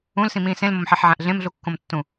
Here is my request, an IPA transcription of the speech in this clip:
ũ l s ĩ m ĩː s ẽ l m o m ħ e ħ ʕ æ̃ ʔ ɮ ẽ m ɮ u kː õ m tː ũ

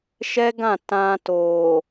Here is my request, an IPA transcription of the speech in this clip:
ʃ ɛ˦ ɡ ã˦˨ t ã˧ t o˨

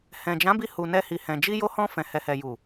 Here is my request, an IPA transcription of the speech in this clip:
h ɛ̃˨ d͡ʒ ã˨˦ b i˧ h u˨ n ɛ˧ h i˨ h ɛ̃˨ d͡ʒ i˧ j o˧ h ɔ̃˧ f ɛ̃˨ h ɛ˨ h ɛ˨ j u˨

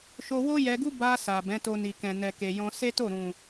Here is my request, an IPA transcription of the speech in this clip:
ʃ o˧ w o˦ j ɛ˧ ɡ u˦ b a˧ s a˨ b ɛ̃˨˦ t o˧ n i˨ k ɛ̃˨ n ɛ˨ k e˨ j ɔ̃˧ s e˦ t o˦˨ ɾ ũ˨

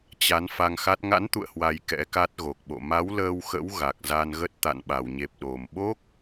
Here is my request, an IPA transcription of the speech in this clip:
t͡ɕ a˨˦ n f a˧ ŋ x a˦˥ t̚ ŋ a̰˧˥ n t̪ ṵ˧˨ ə̯ h w a˨˩ j k ɛ̰˧˥ k a˦˥ t̚ ɣ o˨˩ k̚ ɓ o̰˧˨ m a˨˦ w l əː˧ w x ə̰˧˥ w ɣ a˨˩ k̚ z a˧ n ɣ ə˦˥ t̚ t̪ a̰˧˨ n ɓ a˧˩ w ɲ e˨˩ p̚ ɗ o˨˩ m ɓ o˦˥ k̚

